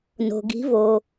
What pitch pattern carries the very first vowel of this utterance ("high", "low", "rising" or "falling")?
low